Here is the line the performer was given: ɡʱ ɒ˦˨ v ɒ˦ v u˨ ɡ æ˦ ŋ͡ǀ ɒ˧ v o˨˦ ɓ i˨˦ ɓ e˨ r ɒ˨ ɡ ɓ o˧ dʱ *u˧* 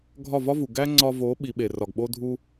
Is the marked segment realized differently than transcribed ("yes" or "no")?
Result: no